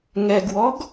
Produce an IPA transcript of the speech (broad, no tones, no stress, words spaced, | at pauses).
ŋɛɡwɔɡ